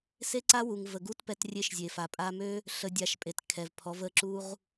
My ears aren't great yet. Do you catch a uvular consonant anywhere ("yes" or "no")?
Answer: yes